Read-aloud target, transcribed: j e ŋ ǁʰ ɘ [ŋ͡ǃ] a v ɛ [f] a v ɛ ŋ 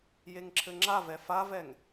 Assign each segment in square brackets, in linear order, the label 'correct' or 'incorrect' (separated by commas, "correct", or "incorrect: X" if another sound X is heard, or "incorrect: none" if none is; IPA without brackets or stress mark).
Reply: incorrect: ŋ͡ǁ, correct